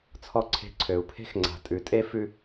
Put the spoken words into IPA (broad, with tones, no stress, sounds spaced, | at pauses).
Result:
t͡sʰ ɔ˦ ǀʰ e̤˦˨ ǀʰ ø˨ u̯ pʰ e̤˦ x ŋ͡ǀ a̤˨ tʼ ʉ˨ tʼ e˦ f ʉ˦